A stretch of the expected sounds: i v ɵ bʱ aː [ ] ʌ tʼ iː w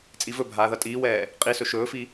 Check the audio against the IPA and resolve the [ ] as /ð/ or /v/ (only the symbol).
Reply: ð